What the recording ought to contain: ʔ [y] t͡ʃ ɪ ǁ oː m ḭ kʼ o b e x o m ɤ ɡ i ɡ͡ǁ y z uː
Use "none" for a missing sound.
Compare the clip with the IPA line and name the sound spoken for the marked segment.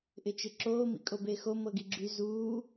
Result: ɪ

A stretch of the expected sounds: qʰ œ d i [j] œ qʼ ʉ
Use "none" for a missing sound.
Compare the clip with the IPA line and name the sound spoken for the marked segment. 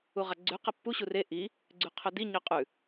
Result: ɲ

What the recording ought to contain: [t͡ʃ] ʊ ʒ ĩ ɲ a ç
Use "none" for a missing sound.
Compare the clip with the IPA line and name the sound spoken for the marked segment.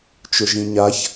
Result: t͡ʃ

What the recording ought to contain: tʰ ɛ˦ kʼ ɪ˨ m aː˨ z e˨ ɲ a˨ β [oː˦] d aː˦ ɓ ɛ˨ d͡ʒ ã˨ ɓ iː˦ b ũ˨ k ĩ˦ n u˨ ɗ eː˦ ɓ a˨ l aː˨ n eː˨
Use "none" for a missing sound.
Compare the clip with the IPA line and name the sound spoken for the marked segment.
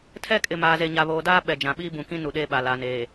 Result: oː˨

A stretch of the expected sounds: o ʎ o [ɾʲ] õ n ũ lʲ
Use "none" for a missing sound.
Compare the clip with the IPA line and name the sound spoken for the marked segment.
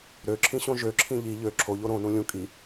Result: ɾ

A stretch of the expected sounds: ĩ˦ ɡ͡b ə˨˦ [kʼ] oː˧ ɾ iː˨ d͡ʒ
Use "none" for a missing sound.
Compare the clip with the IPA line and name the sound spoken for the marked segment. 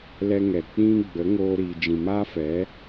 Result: ŋ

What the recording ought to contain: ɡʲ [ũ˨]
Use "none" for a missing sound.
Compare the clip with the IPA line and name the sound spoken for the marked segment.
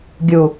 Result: u˨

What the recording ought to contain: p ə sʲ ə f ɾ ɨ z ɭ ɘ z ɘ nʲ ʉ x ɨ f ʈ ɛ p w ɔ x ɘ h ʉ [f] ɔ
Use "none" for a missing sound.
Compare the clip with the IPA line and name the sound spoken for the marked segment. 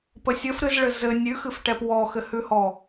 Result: h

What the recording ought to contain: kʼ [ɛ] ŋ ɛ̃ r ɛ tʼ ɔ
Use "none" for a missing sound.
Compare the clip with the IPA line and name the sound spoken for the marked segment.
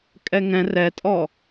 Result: ɛ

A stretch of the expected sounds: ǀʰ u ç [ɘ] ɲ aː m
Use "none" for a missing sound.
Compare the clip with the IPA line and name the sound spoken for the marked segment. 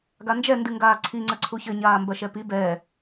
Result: ɘ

